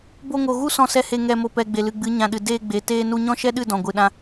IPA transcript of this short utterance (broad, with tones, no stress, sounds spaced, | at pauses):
b o˧ ŋ o˨ ɣ u˦ s ɔ̃˧ s ɛ˧ h e˧ ŋ ɛ˧ m o˧ p ɛ˨ ɡ͡b e˨ l ɨ˨ ɡ͡b ɨ˨˦ ɲ ã˨ ɗ ɨ˨ d eː˧ ɡ͡b e˨ t eː˧ n u˧ ɲ ɔ̃˦ ʃ ɛ˦ ɗ ɨ˦˨ d ɔ̃˨ ɡʷ ɨ˨ ɗ ã˧